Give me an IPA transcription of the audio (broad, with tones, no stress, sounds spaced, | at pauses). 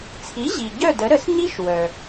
t͡sʰ i˩˥ ʑ i˩ ɟ œ˥˩ d ə˩˥ ɾ ə˩˥ s ɲ i˥ ʃ w œ˩